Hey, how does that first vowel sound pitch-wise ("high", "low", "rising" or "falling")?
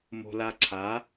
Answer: high